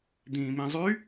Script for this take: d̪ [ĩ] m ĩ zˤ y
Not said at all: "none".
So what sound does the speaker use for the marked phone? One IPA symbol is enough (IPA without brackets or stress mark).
ĩː